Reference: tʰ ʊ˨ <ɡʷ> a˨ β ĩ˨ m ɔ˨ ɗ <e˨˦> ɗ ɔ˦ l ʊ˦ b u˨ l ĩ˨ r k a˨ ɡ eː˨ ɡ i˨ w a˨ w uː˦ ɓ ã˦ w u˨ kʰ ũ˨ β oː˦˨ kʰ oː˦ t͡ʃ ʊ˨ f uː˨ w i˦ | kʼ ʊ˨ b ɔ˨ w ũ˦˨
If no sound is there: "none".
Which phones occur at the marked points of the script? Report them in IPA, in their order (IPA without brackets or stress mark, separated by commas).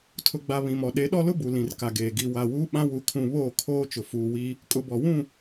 ɡ͡b, e˨˦